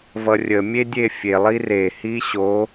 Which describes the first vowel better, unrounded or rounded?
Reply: unrounded